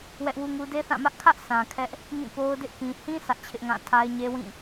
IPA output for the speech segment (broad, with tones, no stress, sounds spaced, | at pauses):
w ɛ˦ ʔ w u˦ ŋ u˦ d e˦ θ ã˦˨ m ä˦ ʔ kʰ ä˦ ʔ s ã˨ kʰ ɛ˦ ʔ | ŋ ĩ˦˨ p o˦ ʊ̯ d ɪ˦ ʔ k ĩ˨ h ĩ˦ s ä˦ ʔ t͡ɕʰ ɪ˦ ʔ ŋ ã˦˨ tʰ a˦ ɪ̯ ɲ e˦ w ĩ˦˨